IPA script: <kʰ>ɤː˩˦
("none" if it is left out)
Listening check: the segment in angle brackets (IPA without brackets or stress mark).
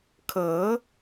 kʰ